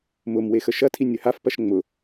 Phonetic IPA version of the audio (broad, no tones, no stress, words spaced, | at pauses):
mʊmwe xəʃɐtʰi nʲəhafpɐʃ ŋ͡mʊ